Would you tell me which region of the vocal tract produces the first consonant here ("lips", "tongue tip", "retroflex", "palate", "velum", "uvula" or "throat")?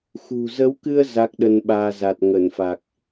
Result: velum